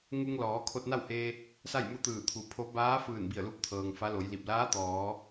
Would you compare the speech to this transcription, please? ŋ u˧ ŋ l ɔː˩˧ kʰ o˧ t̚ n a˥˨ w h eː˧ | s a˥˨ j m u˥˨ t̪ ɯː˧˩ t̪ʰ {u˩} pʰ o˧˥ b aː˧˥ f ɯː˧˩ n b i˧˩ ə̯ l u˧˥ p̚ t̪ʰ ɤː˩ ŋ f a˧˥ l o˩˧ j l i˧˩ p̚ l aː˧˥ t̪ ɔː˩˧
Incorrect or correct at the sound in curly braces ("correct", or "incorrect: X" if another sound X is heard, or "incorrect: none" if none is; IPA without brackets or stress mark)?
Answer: correct